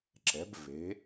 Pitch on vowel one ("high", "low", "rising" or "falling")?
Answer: rising